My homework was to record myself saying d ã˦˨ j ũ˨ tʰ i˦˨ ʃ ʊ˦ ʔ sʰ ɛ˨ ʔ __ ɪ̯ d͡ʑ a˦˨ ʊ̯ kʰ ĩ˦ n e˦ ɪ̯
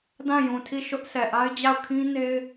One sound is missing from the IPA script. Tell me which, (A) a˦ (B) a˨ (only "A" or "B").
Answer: A